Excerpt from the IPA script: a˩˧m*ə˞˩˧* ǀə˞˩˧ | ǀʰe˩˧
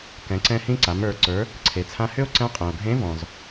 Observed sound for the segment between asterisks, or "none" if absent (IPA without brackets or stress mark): ə˞˩˧